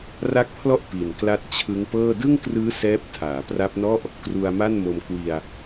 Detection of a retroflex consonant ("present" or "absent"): absent